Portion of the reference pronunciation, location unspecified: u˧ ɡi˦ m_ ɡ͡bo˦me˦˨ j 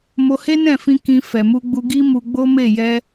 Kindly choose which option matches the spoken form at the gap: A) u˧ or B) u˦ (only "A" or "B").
A